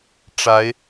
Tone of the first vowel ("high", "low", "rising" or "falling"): rising